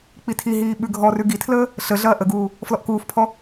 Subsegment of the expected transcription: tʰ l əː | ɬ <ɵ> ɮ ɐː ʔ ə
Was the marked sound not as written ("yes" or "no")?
yes